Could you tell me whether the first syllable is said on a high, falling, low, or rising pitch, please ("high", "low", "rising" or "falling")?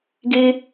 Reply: high